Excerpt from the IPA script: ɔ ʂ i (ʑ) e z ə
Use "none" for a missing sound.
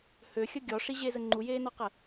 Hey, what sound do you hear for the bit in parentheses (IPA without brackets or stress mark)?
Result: ʑ